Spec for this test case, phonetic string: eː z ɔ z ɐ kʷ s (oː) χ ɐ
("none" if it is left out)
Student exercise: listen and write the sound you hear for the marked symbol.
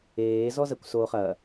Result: oː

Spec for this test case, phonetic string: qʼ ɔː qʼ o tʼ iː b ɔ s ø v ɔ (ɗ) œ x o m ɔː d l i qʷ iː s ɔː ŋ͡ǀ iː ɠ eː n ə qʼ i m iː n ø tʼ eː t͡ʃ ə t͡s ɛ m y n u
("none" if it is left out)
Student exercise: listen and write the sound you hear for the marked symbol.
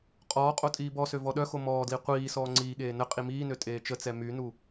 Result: ɗ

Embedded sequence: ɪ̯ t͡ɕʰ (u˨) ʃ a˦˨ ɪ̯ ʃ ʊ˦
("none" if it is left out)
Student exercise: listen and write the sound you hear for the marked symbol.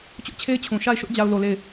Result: ũ˨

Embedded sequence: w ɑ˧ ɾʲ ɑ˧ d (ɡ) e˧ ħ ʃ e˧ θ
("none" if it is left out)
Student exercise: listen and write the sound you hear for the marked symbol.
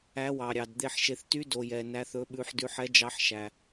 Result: d̪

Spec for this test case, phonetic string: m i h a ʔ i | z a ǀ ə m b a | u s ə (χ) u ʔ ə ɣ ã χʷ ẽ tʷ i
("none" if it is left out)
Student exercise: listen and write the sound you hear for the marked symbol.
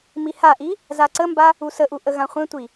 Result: ʔ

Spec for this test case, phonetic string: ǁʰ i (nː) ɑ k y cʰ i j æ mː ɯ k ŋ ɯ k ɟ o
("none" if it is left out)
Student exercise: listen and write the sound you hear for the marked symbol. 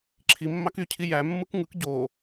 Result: mː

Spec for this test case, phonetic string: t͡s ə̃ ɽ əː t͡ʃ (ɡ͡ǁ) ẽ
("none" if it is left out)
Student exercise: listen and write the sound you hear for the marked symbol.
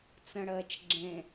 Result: ɡ͡ǁ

